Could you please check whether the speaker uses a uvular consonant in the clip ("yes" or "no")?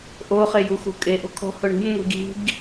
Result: yes